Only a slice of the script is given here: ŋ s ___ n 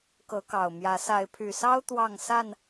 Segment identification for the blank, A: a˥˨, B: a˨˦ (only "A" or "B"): A